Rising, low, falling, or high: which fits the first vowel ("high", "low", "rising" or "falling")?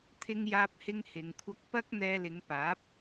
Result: high